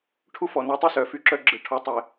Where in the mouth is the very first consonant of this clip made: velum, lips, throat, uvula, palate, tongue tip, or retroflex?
retroflex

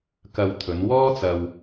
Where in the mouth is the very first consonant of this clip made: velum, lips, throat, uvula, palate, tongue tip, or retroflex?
velum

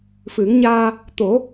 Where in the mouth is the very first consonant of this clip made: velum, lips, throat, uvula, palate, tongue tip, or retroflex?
lips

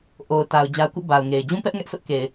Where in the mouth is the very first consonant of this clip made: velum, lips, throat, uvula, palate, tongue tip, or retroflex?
throat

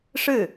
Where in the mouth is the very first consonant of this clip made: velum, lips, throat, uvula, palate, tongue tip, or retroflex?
retroflex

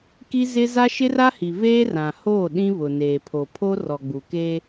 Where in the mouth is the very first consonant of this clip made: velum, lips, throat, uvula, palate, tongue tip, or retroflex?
velum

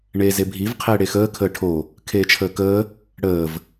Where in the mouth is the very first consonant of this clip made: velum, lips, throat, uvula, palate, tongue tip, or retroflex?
retroflex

